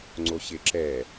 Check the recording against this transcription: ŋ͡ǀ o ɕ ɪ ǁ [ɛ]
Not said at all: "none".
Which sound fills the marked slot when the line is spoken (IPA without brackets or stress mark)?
ɛ